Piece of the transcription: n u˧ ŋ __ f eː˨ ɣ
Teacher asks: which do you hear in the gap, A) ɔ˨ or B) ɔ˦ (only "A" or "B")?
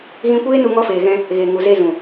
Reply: B